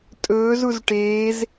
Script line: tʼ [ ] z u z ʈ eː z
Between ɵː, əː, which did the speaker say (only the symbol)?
ɵː